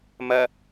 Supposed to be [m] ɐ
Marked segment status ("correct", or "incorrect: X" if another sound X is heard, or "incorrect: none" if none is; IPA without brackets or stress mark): correct